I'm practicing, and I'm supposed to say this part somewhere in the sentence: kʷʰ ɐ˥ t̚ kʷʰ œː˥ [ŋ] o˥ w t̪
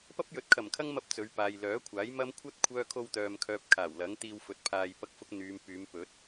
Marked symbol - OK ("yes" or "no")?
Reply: no